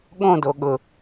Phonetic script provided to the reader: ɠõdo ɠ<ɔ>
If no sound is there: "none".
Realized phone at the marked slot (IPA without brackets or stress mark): ʊ